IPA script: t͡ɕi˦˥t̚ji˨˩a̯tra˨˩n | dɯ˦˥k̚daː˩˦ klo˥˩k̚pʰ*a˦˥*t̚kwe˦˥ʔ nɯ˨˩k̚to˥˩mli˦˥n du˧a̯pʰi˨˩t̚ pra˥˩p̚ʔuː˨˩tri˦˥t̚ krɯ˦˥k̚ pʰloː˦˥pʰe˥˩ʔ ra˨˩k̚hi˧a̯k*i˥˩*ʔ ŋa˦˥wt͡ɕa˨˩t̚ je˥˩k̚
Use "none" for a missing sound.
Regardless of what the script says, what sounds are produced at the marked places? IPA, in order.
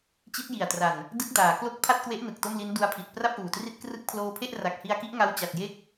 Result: a˥˩, i˦˥

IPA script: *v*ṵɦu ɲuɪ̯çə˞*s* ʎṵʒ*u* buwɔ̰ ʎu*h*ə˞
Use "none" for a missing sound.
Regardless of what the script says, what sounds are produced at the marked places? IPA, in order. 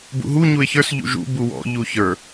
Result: b, s, ṵ, ç

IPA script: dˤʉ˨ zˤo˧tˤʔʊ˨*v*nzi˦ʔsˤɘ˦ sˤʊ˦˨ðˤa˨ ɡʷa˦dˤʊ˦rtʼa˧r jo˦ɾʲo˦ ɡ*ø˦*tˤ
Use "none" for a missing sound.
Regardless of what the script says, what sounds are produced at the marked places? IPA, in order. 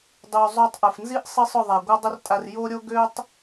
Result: f, ø˦

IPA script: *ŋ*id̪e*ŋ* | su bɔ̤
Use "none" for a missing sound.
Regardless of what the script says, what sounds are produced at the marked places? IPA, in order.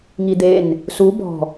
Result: ŋ, n

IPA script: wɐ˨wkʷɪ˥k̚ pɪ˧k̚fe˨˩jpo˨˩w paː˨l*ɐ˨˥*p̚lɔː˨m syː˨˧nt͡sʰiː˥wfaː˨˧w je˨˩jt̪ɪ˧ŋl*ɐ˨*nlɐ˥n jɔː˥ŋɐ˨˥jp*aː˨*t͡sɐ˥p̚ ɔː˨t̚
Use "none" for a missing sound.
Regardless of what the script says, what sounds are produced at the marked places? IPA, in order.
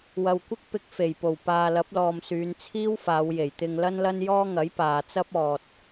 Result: ɐ˨˥, ɐ˥, aː˨

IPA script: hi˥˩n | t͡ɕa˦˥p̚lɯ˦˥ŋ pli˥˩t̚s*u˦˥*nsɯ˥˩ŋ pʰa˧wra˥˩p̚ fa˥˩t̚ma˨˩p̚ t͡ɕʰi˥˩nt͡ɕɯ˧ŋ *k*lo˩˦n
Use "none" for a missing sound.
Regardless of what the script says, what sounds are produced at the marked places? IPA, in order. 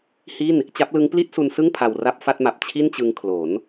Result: u˧, kʰ

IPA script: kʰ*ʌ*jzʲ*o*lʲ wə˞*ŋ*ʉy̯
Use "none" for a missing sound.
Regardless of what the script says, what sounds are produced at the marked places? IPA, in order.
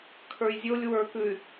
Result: ə˞, o, k

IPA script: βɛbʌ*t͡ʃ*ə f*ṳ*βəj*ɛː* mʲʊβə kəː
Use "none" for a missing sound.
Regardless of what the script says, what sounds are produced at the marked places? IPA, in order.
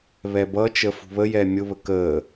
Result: t͡ʃ, ṳ, ɛː

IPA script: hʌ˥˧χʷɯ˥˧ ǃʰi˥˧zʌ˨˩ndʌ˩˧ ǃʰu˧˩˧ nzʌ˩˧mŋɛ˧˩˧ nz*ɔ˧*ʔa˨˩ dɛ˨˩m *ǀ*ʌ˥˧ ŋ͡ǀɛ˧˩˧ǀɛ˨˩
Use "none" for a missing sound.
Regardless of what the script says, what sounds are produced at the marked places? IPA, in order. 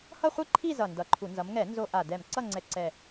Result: o˧, ǀ

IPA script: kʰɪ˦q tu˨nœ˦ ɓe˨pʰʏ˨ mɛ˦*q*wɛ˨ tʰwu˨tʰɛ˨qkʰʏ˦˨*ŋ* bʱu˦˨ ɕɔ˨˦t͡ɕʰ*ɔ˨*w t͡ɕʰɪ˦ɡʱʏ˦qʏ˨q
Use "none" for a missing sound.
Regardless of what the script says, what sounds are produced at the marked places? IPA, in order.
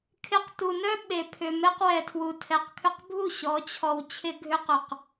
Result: q, q, ɔ˨

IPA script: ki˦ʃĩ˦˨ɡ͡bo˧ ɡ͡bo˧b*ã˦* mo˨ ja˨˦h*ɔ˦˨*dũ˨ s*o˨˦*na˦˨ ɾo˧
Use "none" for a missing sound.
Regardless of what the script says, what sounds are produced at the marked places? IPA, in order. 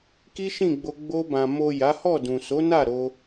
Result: ã˨, ɔ˦˨, o˨˦

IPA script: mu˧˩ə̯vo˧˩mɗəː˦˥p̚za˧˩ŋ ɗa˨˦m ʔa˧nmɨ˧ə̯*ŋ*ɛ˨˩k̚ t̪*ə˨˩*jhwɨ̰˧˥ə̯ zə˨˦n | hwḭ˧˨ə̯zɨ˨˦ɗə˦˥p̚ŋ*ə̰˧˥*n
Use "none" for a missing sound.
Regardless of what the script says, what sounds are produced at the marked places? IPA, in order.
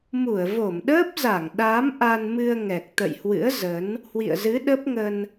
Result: ŋ, ə̰˧˨, ə˧

